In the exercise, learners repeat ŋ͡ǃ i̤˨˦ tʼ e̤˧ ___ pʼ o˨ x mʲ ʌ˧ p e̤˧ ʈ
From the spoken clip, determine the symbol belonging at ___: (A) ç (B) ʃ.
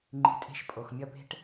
B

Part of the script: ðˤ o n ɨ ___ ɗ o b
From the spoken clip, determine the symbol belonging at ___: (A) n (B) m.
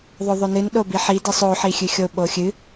A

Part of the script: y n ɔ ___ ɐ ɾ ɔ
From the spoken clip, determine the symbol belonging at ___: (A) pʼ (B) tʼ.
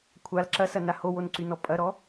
A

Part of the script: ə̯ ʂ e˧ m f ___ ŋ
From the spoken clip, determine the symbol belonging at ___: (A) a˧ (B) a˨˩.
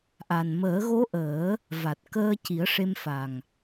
B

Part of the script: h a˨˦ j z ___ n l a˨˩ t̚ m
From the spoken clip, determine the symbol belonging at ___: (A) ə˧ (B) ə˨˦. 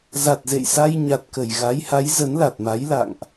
B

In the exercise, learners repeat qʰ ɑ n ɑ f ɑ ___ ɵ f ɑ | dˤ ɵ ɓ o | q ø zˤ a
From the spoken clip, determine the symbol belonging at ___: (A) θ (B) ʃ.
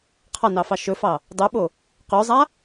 B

